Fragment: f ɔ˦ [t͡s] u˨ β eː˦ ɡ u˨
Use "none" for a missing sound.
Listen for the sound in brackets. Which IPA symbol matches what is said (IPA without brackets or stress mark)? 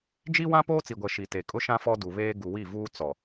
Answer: d